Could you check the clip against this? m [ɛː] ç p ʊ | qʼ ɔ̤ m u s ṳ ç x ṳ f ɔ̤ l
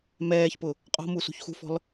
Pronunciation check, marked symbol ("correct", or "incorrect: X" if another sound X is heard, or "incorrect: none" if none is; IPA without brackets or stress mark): correct